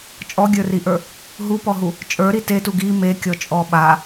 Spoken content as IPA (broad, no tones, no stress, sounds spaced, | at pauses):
t͡ʃʼ ɔ ɡʲ ə˞ r i ʔ ə˞ | ɦ u p ɔ ɦ u | t͡ʃʼ ə˞ ɾ i t e t u ɡ i m e kʲ ɔ t͡ʃʼ ɔ ɓ a